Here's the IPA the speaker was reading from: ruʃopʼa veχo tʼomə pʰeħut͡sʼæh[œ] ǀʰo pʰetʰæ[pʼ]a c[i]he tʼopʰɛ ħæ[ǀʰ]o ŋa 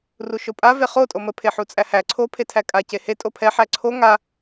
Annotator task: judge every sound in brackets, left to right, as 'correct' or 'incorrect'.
incorrect, incorrect, incorrect, correct

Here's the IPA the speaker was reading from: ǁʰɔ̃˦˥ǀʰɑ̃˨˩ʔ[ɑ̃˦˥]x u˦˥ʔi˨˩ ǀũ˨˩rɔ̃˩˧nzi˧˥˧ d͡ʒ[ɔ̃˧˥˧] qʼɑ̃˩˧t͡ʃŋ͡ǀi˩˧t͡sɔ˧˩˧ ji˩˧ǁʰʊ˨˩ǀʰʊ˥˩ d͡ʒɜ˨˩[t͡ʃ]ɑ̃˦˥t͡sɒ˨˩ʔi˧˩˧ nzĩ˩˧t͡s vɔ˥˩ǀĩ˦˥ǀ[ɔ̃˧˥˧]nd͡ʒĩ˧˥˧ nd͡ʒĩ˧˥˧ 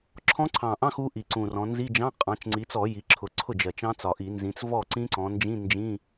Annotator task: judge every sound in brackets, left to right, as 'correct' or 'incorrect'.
incorrect, incorrect, correct, incorrect

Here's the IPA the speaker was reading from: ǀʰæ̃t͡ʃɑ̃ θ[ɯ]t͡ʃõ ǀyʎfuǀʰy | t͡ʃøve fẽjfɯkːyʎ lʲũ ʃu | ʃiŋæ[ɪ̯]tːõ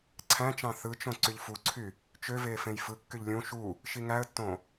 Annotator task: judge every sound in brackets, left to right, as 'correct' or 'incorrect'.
correct, incorrect

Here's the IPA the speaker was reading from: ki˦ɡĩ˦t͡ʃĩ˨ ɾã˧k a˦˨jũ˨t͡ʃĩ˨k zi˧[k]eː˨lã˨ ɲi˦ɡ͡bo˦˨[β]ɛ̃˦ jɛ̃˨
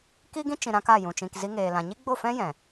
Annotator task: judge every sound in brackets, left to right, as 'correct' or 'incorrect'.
incorrect, incorrect

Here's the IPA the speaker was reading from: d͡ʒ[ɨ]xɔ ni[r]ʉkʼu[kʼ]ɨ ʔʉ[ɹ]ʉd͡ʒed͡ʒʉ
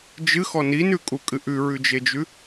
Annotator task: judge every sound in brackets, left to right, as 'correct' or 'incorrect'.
correct, incorrect, correct, correct

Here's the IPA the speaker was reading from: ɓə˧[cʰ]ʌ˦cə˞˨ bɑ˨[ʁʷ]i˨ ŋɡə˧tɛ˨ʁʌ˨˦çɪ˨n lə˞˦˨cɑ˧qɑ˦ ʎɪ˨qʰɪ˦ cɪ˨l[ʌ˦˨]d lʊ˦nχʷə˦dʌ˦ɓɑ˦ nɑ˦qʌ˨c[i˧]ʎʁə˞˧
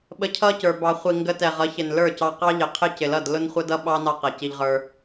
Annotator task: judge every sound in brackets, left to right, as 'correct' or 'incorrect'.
correct, incorrect, correct, correct

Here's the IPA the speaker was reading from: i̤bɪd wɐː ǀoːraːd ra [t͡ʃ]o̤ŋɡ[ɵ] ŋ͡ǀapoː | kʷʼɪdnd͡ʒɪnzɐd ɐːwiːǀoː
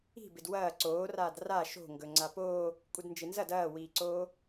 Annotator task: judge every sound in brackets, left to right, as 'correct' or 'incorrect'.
incorrect, correct

